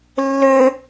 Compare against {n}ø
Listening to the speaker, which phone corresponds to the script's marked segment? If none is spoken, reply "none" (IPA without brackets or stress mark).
lː